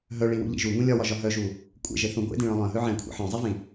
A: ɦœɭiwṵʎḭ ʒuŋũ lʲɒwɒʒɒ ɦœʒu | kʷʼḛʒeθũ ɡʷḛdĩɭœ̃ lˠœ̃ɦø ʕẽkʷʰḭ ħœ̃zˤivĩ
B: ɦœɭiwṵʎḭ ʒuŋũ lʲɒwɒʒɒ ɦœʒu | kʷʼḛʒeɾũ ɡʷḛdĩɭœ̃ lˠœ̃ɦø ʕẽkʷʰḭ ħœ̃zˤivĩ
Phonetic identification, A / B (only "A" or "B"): A